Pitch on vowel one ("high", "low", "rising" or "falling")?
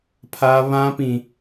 high